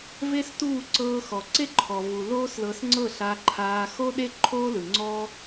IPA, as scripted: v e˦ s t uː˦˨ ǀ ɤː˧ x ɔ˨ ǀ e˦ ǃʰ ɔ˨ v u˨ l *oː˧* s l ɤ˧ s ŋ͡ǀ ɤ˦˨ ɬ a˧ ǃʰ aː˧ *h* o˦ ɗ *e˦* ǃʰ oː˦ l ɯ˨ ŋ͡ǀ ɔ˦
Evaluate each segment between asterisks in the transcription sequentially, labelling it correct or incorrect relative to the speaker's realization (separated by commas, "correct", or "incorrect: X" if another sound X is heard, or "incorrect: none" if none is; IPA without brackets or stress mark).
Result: incorrect: oː˦, incorrect: x, correct